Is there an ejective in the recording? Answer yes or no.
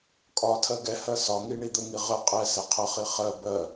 yes